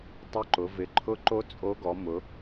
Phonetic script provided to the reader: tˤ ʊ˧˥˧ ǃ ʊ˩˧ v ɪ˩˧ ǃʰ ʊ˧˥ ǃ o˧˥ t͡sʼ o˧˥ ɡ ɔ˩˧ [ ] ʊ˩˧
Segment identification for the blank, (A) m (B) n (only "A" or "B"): A